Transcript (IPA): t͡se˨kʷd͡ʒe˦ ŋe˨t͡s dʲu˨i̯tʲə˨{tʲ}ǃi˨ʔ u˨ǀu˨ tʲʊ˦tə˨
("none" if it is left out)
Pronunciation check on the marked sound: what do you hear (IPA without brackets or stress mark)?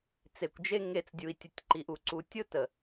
tʲ